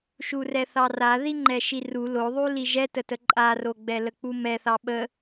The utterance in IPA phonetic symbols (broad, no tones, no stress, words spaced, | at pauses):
ʃurɛθɑra ðiŋ͡ǃɛʃiru loðˤu liʒɛtətə ǃʼaroɡ͡bɛlə k͡pumɛθɑ ɓə